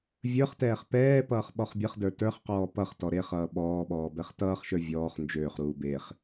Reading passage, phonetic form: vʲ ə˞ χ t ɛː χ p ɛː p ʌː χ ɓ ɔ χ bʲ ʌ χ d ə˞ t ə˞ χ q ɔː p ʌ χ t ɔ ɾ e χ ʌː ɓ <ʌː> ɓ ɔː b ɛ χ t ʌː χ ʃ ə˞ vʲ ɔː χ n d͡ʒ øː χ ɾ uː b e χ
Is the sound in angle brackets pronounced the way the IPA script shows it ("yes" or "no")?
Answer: no